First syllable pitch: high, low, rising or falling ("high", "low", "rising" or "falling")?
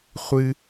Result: high